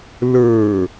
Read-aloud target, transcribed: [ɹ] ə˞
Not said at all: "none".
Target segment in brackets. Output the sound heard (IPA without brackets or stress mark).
l